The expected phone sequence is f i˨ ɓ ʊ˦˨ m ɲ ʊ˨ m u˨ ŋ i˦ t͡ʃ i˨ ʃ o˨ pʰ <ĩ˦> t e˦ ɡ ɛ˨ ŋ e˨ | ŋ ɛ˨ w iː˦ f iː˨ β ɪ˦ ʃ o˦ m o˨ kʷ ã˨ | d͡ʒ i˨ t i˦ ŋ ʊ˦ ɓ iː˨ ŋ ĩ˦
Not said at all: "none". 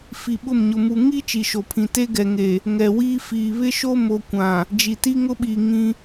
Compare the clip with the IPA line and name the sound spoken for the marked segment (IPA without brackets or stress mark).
ĩ˨